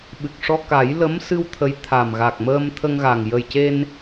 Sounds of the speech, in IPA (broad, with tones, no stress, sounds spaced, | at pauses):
ɓ ɨ˨˩ k̚ ʂ ɔ˧ k a˨˩˦ j l ə˧˥ m s ɨ˧ w t̪ʰ ə˧˥ j t̪ʰ a˨˩ m ɣ a˨˩ k̚ m əː˧ m t̪ʰ ə˧ ŋ ɣ aː˨˩ ŋ j ə˨˩ j c e˧ n